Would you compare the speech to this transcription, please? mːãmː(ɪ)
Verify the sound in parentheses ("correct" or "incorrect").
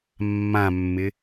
correct